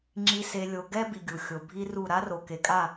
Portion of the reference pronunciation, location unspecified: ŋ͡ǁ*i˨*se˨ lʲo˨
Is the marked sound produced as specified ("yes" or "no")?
yes